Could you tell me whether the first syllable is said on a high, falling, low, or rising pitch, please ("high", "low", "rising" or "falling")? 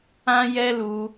high